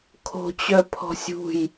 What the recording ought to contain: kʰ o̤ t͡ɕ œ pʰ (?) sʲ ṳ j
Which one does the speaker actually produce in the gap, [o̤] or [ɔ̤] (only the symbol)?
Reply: ɔ̤